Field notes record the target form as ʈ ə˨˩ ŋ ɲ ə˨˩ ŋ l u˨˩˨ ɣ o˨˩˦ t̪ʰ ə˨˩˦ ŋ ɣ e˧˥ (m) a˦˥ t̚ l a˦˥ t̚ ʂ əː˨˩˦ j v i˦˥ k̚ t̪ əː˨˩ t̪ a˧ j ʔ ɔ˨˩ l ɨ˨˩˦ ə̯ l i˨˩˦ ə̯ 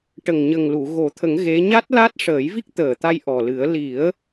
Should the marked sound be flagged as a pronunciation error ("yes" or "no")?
yes